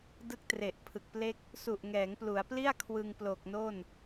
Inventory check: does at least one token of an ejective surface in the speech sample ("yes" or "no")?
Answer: no